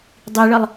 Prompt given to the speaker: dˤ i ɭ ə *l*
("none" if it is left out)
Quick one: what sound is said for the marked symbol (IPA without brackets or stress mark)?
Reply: lˠ